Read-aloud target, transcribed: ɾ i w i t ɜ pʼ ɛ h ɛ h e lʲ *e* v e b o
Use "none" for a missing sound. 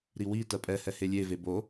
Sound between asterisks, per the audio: e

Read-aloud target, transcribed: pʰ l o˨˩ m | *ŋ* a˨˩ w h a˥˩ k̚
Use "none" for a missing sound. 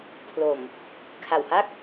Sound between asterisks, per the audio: kʰ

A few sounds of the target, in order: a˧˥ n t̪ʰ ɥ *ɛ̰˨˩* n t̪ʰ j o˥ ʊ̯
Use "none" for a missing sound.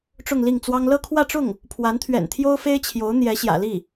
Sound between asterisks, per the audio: ɛ̰˨˩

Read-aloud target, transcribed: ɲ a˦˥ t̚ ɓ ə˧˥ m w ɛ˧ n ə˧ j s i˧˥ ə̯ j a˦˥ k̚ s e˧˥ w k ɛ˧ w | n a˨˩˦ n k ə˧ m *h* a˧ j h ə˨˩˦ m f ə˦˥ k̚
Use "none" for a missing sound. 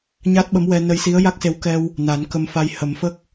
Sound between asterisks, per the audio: f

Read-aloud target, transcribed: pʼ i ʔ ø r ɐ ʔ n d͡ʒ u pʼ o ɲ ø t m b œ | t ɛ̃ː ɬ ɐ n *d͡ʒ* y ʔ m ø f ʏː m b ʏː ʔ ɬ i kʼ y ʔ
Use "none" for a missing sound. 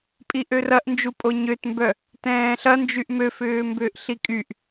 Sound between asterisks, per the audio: d͡ʒ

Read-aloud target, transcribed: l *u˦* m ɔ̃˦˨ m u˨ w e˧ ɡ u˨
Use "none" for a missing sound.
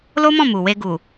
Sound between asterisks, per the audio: o˦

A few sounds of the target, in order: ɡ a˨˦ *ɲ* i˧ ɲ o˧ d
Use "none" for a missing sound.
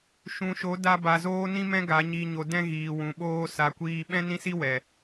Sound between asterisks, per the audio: ɲ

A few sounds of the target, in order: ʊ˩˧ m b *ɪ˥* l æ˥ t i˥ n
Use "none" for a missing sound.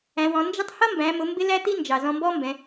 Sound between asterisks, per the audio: ɪ˥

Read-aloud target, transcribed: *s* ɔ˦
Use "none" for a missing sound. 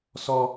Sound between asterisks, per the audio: s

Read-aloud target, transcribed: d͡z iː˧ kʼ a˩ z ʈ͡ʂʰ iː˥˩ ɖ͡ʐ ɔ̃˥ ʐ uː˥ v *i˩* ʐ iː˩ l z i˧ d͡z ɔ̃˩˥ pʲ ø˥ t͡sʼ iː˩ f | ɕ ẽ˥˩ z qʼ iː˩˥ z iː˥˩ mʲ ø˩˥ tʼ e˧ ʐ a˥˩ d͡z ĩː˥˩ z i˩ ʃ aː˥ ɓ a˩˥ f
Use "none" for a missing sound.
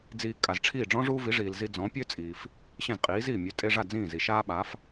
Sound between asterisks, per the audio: i˩˥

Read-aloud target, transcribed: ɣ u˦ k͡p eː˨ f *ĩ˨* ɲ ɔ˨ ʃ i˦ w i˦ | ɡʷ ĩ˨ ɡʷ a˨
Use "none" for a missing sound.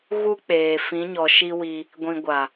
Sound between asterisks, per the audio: ĩ˨˦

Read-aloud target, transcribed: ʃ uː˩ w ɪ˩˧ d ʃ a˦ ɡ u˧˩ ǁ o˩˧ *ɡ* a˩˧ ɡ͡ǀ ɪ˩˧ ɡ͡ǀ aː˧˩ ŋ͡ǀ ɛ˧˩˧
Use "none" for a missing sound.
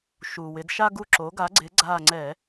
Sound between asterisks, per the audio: ɡ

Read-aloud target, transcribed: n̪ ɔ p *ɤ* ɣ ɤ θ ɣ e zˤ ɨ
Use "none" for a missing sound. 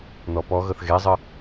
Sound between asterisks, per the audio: ɔ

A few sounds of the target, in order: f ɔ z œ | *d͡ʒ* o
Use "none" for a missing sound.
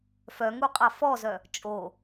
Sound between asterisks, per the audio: t͡ʃʼ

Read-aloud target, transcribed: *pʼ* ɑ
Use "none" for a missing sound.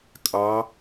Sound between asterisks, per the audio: kʼ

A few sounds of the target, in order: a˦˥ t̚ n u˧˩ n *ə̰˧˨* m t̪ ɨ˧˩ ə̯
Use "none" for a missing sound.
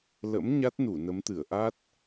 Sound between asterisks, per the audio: ə˨˦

